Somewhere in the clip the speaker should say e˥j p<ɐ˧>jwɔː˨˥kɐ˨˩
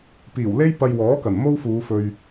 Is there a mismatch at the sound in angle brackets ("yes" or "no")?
no